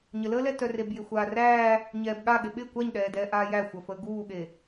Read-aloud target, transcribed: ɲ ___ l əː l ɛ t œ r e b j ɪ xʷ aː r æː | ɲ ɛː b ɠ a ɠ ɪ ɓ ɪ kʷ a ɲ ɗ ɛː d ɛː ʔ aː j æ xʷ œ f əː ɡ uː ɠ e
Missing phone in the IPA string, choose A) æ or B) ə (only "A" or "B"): B